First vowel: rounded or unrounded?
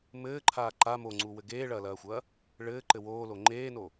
unrounded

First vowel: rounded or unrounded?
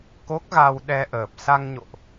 rounded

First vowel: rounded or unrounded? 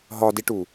rounded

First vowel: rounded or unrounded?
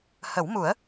unrounded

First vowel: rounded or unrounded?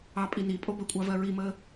unrounded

